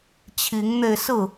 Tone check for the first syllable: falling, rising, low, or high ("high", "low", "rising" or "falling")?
rising